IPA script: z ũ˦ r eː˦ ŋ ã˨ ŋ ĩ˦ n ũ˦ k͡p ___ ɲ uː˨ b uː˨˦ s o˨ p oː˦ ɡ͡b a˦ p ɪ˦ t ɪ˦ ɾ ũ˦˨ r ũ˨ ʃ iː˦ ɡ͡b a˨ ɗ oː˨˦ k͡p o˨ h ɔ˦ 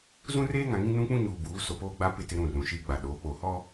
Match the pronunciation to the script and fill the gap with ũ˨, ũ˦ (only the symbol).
ũ˦